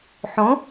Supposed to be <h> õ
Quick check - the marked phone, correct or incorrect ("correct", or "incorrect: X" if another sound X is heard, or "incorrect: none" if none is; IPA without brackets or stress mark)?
incorrect: ħ